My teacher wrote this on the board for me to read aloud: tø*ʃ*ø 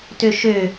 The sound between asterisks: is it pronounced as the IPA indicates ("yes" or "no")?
yes